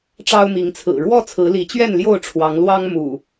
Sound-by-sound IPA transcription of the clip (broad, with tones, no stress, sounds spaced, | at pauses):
ʈ͡ʂ ɑ˦ ʊ̯ m i˨˦ ŋ t͡sʰ ɹ̩˨˩ ɻ w ɔ˥˨ t͡sʰ ɹ̩˨˦ l i˨˦ t͡ɕ ɥ ɛ˥˨ n l j o˥˨ ʊ̯ ʈ͡ʂʰ w ɑ˨˦ ŋ l w ɑ˦ ŋ m ṵ˨˩